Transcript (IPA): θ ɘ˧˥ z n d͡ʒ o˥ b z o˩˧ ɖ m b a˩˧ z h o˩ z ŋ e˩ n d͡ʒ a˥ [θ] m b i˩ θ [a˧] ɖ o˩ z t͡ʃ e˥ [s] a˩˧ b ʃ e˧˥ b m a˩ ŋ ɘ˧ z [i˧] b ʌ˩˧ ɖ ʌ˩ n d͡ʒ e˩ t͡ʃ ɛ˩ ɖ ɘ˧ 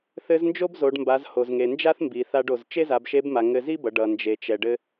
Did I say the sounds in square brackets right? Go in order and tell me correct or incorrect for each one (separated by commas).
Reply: correct, correct, incorrect, incorrect